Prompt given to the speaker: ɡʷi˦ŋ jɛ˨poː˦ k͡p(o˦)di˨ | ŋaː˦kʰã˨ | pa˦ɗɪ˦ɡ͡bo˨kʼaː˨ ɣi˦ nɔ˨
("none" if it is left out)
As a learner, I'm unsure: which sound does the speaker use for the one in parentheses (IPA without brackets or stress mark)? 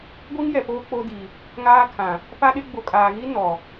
o˦